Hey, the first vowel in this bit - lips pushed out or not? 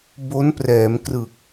yes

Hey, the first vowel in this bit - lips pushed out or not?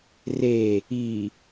no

